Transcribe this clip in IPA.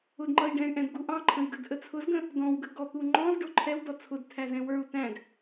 ʊ d ŋ͡ǃ ʌ i̯ ɖ ɛ̃ y̯ ʔ ɛ̃ d ɡ u ʔ ɑ̃ ǃʰ ə̃ i̯ ɡ ə d ʔ ə t͡sʰ ʊ z ɡ ə̃ | d ɔ̃ w ɡ ə ɡ ɔ t̪ u ŋ͡ǃ ɔ̃ z ɖ ʊ ǃʰ ɛ w d ɔ t͡sʰ ʊ d tʰ æ z ɛ̃ w ə˞ u̯ t æ̃ d

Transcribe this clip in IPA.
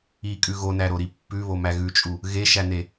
i kʼ ʉ ɣ o n æ ɾ o ɾ i pː ʉ β o m æ ɣ ʉ t͡ʃʼ u | ɣ e ʃ æ n e

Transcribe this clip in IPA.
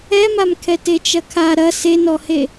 ɛ m a m kʰ ɛ t e t͡ʃ ɐ kʰ a ɾ ɐ s e n ɔ h e

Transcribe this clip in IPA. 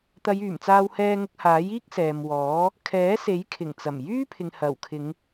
t̪ ɐ˨˧ j yː˨˩ m t͡s aː˧ w h ɛː˧ ŋ ʊ˧ k̚ h aː˨˥ j iː˥ k̚ s ɛː˨ m w ɔː˨˥ | kʰ ɛː˨˥ s e˨˥ j kʰ ɪ˨˩ ŋ t͡s ɐ˨˩ m j yː˥ pʰ ɪ˨ ŋ h ɐ˨˩ w kʰ ɪ˨˧ ŋ

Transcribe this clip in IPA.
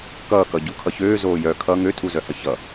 k ʌː k ʌ ɟ u kʰ ʌ ç øː z oː j œ kʰ ʌ ŋ ø tʰ u z œ h ʌ ç ʌ

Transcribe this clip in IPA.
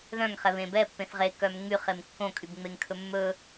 ð œ̃ ŋ χ ɛ β ẽ b ɛ pː ẽ θ ʁ e k œ m ŋ͡m y χ e m kː õ kʼ y b ŋ͡m e ŋ kʰ ɵ mː ɵ

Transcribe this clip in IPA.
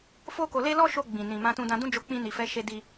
f o˦ k o˧ l e˦ l ɔ˦ ʃ o˧ ɡ͡b ĩ˨ n ĩ˨ m ã˧ t ũ˧ d ã˧ d ũ˦ d͡ʒ o˧ k͡p ĩ˧ n i˨ f ɛ˨˦ ʃ e˧ d i˧

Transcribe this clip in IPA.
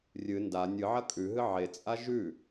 rʲ ɨ n d a nʲ ɨ ʕ ɐ kʼ ʉ ɦ ɨ ʕ e t͡sʼ a ʒ ʉ

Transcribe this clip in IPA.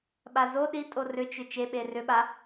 ɓ a z o ɗ i tʼ o r ʏ t͡ʃ ʏ t͡ʃ e ɓ e r ʏ ɓ a

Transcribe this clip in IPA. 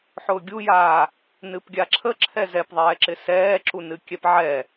ħ ʊː ɡʲ u j aː | n ɨ p ɡʲ a ǁʰ ə ǁʰ ɛ z ɛ p ðˤ ɛː ǁ ɪ s ɛː ǁ u n ɨ kʲ ɛ p ʕ ɛ

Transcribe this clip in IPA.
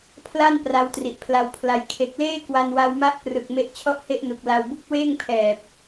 pʰ l a˥˩ n p r a˦˥ w t r i˨˩ ʔ pʰ l a˧ w pʰ l a˧ j kʰ e˨˩ k̚ l eː˥˩ k w a˧ n w a˧ w m a˦˥ ʔ p r ɯ˨˩ k̚ m e˦˥ ʔ t͡ɕʰ ɔ˥˩ ʔ h e˥˩ ʔ n u˨˩ k̚ l a˧ w b u˥˩ k̚ w eː˥˩ ŋ pʰ ɛː˨˩ p̚

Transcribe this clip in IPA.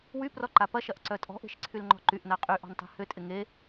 w y p r ɔ ǃ a p ɐ ʃ ɐ ʔ ǀ œ tʼ ɔ̤ ʔ e̤ ʃ ǀʰ y l ŋ͡ǃ ɔ̤ ǃ y ʔ n a qʼ y ʔ ɔ̤ n tˤ e̤ h ʏ tʼ ɪ ŋ e

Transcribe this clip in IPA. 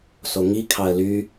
s o ŋ i kʰ ɑ ə̯ l y

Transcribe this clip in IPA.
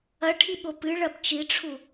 ɐ ʈʰ i ɓ o p ɨ ɭ ɐ b t͡ʃ i ʈ͡ʂʰ u

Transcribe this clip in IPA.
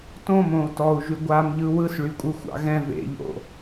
t õ m õ u̯ t ɔ u̯ ʒ y ɡʷ a m ʎ ɯ w ɯ s ɭ y kʷʼ ɯ xʷ ɑ̰ ɣ ɛ̃ v ḛ ʎ o̰

